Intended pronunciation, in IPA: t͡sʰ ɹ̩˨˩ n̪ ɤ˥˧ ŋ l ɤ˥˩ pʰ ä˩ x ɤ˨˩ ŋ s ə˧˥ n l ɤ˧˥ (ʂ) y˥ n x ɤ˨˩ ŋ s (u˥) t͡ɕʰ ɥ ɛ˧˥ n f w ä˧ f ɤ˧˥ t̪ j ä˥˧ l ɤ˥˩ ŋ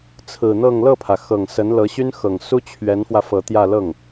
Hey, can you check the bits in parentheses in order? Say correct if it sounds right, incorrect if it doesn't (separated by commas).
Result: incorrect, correct